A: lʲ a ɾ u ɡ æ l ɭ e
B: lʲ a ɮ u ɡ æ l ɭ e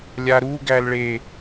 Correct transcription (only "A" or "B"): A